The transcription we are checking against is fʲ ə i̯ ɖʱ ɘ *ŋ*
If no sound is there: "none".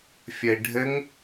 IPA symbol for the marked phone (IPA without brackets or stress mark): ŋ